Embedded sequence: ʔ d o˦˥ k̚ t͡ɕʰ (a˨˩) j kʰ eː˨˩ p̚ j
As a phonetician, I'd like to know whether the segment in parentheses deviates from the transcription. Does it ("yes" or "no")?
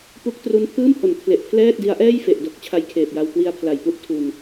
yes